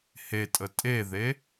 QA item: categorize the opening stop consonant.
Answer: ejective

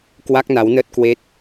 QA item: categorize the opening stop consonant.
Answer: plain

